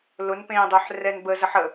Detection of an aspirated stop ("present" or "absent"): absent